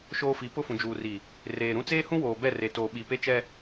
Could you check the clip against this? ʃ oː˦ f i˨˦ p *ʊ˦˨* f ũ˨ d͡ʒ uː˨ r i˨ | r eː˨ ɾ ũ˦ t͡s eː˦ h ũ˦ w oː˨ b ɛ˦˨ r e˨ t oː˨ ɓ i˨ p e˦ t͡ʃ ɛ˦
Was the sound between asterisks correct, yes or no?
yes